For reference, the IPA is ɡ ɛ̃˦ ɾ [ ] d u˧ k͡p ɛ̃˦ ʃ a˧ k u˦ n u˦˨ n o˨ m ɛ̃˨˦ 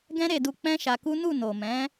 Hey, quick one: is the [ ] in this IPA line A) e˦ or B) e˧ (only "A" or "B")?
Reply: B